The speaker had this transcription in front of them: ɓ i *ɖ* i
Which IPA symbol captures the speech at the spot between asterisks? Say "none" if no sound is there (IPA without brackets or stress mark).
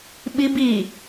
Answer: b